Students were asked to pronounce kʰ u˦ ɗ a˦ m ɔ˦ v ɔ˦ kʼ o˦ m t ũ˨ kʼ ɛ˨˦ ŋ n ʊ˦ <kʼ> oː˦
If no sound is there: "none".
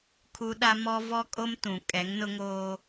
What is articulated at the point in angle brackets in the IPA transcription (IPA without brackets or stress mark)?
ŋ